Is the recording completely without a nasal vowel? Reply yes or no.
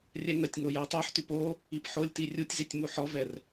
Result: yes